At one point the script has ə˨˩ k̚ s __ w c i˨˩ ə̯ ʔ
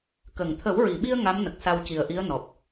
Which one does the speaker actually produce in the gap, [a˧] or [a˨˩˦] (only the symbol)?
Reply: a˧